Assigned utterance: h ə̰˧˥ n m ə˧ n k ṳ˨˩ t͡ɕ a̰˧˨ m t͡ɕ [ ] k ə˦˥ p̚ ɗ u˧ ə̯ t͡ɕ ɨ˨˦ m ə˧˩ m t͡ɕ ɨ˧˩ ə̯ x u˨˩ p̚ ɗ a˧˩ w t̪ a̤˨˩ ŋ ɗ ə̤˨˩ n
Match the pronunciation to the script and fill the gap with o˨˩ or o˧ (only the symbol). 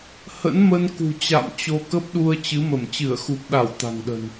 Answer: o˧